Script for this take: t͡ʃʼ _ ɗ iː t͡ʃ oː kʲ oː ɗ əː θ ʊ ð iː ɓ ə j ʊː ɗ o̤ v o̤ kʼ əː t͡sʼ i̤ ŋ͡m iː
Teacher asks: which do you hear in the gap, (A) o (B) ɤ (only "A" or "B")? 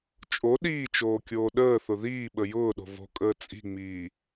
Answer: A